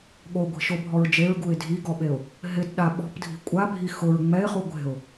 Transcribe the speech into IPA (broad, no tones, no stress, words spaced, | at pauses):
ɠoɡʷi̤ʃobʱɔɹ d͡ʒeɹɡuɪ̯ dʱiɡɔɓeʊ̯ | ɦɪdɗa ɓɔ̤pdʱi̤ kʷʼabʱi xʊɹ ŋ͡mɛɪ̯χu ɡʷe̤ʊ̯